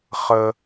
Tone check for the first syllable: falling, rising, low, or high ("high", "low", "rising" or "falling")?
high